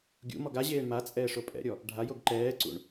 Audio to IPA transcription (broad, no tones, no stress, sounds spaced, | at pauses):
ɡʲ ṵ m ɔ ɡ a ʑ eː ɳ m a t͡sʼ ɛː ʂ o pʼ ɛ̰ ɾʲ ɔ | ɖʱ a j o ɡ ǃ ɛː ǀ ṵ ɳ